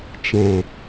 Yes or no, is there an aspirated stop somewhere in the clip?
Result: no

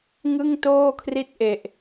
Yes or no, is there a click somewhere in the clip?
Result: no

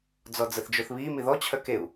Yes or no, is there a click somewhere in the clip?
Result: no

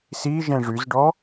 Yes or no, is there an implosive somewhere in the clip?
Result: no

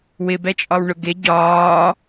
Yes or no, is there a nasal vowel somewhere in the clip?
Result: no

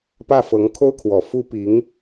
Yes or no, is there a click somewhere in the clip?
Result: no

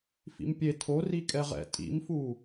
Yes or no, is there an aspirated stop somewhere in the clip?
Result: yes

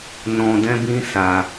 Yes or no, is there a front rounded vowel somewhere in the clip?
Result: no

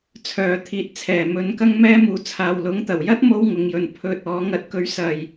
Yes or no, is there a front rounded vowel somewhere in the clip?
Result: yes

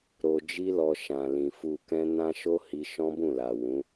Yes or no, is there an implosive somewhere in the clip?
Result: no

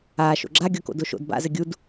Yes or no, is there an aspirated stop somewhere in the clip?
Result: no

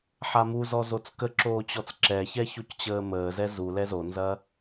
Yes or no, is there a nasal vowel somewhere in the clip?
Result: no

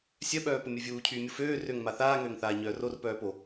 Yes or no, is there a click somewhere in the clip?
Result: no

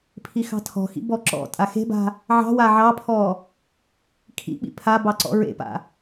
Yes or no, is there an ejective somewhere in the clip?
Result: yes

